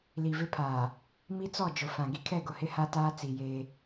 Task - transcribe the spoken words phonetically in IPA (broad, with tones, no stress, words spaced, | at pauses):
li˨vɪ˦pʰaː˨ | mi˦t͡sɔ˦˨ d͡ʒʊ˨ fã˨ ɡi˦kʰɛ˦˨ɡʊ˨hɪ˦ ha˦taː˦ t͡si˨jeː˦